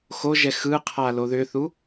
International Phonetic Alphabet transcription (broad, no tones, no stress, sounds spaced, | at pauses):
x o ʒ ɛ x ɯ qʰ a l o ð ʏ θ u